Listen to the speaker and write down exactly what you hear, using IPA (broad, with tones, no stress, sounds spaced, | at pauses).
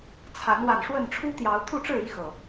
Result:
t͡sʰ a˨˦ n w a˨˩ n ʂ w ə˥˨ n ʈ͡ʂʰ u˦ t̪ j ɑ˨˦ ʊ̯ t̪ʰ u˥˨ ʈ͡ʂ ɻ̩˥˨ i˦ x ɤ˨˩